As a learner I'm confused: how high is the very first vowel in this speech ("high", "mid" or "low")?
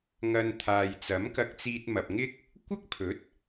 low